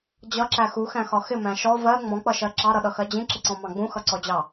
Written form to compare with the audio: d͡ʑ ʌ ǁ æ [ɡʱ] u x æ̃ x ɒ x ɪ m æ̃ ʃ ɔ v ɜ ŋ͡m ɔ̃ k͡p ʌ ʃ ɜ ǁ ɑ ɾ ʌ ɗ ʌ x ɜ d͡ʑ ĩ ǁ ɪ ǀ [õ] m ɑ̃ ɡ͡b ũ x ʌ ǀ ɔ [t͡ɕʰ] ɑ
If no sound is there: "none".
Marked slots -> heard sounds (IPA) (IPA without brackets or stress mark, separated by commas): x, ɔ̃, d͡ʑ